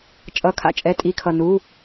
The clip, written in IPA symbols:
t͡ʃʼʌ˩˧˩kʰa̰˩ t͡ʃʼɛ˩˧˩tʼi˩˧˩kʰʌ˩ nu˩˧˩

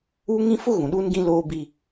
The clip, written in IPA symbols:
uː˦ŋĩ˦ fʊ˦ ɣũ˨ɗuː˦nɡĩ˦ loː˦ bi˦

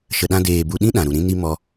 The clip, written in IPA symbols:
ʃə˨ɗã˧deː˨ bu˧ɗĩ˦ɗã˨ɾu˨ ɾĩ˧ni˧ mɔ˧

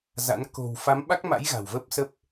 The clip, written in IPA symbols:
za̰˧˥n ko̤˨˩w fa˨˦mɓa˦˥k̚ma̰˧˥j ɣa̤˨˩wvə˦˥p̚sə˦˥p̚

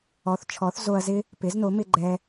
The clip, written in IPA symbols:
ɔ˩˥θt͡ʃʰɔ˩˥θzo˧ɐ̯zɪ˥ | pɪ˩˥zno˩˥mɪ˧ ɡ͡ǃɛ˧

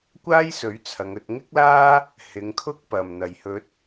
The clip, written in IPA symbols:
kʷaː˥jsɵ˨˥ɥ t͡sʰɐ˨˧ŋɵ˧t̚ŋɪ˥k̚laː˥ | hɪ˨˧ŋkʰʊ˥k̚ pɐ˨˩mn̪ɐ˨˩jhɵ˨˥t̚

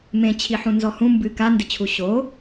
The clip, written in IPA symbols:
mẽ t͡ɕʰiħũnzɔhũ mbɨ ka ndɘt͡ɕʰuɕo

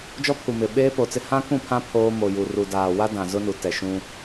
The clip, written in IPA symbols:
d͡ʒɔ˦pʰu˨mɪ˨ ɓeː˦po˨t͡sɪ˦ hã˦kũ˦˨pʰã˦ pʰoː˦ mo˨ju˨ ru˨daː˨ wa˦ dã˨zʊ˦nu˨ tɛ˨ʃũ˦

